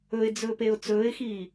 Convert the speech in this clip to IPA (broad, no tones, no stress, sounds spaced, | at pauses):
ɵ ɪ̯ d͡z ɵː p e ʊ̯ t͡s ɵː ɪ̯ x iː